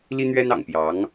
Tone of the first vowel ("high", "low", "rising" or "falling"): high